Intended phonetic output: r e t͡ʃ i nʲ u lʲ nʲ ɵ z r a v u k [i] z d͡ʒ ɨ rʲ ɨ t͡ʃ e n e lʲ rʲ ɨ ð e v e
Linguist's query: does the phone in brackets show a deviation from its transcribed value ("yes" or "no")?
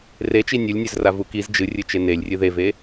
no